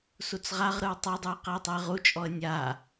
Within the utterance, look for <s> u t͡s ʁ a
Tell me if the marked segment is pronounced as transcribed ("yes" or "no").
yes